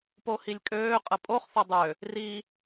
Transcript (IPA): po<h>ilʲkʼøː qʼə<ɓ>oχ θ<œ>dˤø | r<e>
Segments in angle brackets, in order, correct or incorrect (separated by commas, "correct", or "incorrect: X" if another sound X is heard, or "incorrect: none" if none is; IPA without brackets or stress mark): correct, incorrect: pʼ, correct, incorrect: i